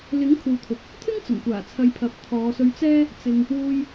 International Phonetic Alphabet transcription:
lɪ˨˥ŋ kʰuː˨t̪ʰʊ˨k̚ | t̪ʰɪ˥ŋ t͡sʊ˨˩ŋkʷaː˨˩ t͡sʰɐ˧jpʰɐ˨˥p̚ t̪ʰɔː˨˧sɵ˧ɥt͡sɛː˥ | t͡sɪ˧ŋ | wuː˧j

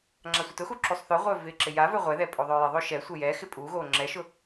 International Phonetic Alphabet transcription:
ŋ͡ǁasʷɪtʊxu ǁusˤθœʁʷœː vɪːǁɪjavœ ʁʷɛðɛ pʼoðˤœːjɪðˤo ʃɛsʷɪ jɛ xɪpʼuɣoː ŋ͡ǁɛʃʊ

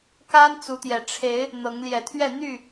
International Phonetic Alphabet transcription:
ka˦n t͡su˨˦t̪jɛ˨˩ ʈ͡ʂʰe˨˦ɪ̯ | n̪ɤ˨˦ŋljɛ˨˩t̪ʰɥɛ˥˨ n̪y˥˨

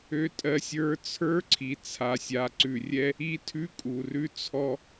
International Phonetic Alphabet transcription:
ø˦tʼɜ˦sʲə˞˦ t͡sʰə˞˦ǀʰi˨ t͡sʰa˨sʲa˨ǀʉ˨ rʲɛ˦ | i˦tʰʉ˦kʼu˨ rʉ˦t͡sʰɔ˦

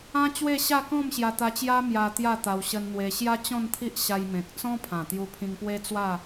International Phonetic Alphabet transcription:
ã˦t͡ɕwe˥˧ɕa˥˧ kɔ̃˥˧mɕja˧t̪a˧t͡ɕja˦ mja˧ t̪ja˥˧t̪a˧w ɕə˧nn̪we˧ɕja˦ t͡ɕɔ̃˥˧nt̪ʰi˦ʔ ɕa˧jmẽ˨k̚ t͡sɔ̃˦pʰã˨˩t̪ju˧ pʰĩ˧ŋpwe˦t͡swa˥˧

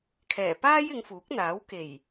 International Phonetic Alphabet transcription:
kʰɛː˨˩paː˥jɪ˨˧ŋ fuː˨˥k̚n̪aː˨˥w ke˨˩j

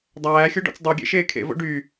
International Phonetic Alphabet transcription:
dˤæːxʲo ɖɔ̰t͡sdˤoɡʲḛ ʃeːkʰḛvo̰ ɖy

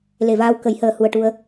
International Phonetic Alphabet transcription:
le˨˩vaː˧wkə˨˩˦jhəː˨˩ hu˨˩ə̯ʈu˧ə̯

